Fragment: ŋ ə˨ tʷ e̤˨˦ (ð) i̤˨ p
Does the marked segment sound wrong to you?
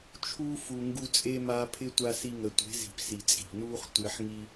yes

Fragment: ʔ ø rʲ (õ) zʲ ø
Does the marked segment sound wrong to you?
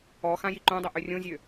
no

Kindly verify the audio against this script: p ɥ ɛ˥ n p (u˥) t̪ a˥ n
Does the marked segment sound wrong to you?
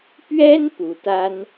yes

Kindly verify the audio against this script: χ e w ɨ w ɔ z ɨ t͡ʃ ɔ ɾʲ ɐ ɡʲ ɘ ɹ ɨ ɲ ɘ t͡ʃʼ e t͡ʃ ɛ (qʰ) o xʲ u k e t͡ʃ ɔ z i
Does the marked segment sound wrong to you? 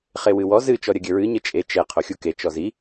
no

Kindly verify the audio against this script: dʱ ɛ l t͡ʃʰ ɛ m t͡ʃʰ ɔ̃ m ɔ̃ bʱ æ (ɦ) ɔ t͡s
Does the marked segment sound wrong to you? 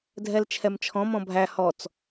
yes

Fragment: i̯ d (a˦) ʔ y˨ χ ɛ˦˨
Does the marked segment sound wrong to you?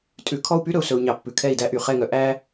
yes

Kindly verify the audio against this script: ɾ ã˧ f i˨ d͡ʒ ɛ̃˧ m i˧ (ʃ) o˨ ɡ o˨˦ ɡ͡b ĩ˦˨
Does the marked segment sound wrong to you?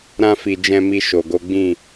no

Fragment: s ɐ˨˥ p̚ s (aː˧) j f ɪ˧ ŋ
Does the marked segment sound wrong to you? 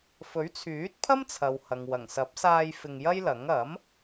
no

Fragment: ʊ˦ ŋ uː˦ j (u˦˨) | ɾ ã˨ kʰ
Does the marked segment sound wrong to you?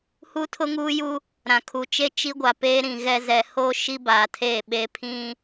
yes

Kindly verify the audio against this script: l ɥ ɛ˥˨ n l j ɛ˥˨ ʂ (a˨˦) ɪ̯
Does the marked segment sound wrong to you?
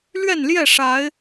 no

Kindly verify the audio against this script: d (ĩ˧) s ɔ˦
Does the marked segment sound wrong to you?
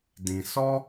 no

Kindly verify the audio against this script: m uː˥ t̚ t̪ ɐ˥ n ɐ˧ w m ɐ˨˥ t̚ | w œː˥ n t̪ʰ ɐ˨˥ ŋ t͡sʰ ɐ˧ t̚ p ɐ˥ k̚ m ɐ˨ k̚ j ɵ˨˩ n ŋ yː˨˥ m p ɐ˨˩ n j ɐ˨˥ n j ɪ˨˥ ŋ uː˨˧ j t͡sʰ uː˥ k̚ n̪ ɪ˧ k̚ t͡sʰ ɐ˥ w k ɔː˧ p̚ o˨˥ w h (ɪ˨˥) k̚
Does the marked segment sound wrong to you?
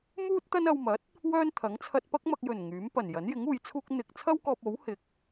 yes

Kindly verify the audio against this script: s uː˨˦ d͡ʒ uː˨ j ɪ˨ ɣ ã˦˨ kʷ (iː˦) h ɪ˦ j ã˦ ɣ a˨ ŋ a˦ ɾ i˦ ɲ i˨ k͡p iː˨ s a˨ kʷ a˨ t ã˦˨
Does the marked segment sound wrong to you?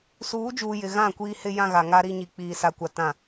no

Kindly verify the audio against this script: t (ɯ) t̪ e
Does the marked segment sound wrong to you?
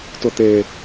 yes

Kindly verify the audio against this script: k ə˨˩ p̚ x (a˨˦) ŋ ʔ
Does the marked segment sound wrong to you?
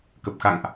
yes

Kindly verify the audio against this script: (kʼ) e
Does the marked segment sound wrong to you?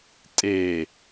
yes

